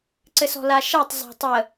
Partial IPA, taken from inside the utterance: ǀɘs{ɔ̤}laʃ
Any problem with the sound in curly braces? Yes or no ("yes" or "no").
no